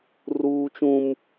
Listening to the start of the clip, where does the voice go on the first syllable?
high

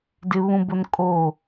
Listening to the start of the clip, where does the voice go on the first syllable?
high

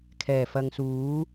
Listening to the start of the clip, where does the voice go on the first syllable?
low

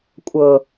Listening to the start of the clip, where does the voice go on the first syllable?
low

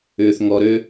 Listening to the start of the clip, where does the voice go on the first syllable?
low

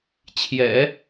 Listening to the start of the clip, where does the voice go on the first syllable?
low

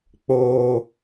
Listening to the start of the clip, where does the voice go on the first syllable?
high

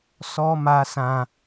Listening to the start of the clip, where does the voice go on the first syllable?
high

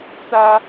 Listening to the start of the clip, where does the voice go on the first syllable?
high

